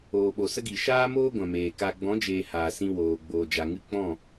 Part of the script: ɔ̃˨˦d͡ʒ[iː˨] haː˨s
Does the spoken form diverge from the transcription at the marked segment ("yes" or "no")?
yes